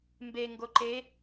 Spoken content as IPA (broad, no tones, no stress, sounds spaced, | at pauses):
m b e ŋ ɡ o ǃ e